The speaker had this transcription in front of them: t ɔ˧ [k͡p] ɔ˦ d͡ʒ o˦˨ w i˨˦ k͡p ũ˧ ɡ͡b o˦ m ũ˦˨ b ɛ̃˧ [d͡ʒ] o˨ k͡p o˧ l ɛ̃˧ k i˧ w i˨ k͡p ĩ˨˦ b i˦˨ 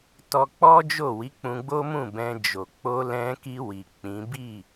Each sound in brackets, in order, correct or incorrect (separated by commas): correct, correct